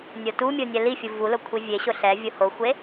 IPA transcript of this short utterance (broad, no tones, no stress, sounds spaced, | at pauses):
nʲ o t u mʲ o nʲ ɛ l i fʲ u v u l ʊ kʷʰ i vʲ e ɕ ʊ ɬ ɛ vʲ ʊ h o xʷ e